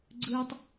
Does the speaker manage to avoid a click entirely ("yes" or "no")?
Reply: no